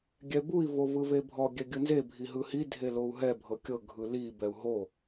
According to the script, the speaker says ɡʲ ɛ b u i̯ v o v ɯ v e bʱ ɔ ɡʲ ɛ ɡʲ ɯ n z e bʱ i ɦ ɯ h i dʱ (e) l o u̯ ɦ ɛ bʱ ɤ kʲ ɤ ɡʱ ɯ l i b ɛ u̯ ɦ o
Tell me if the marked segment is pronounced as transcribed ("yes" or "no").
yes